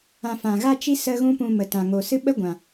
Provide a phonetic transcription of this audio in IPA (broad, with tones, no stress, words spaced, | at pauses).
ã˨ fã˨ɣa˦t͡ʃi˦ sə˦ɣũ˦pũ˧ mə˨tã˨ ŋo˨ sɨ˦ɓə˦ɡʷã˨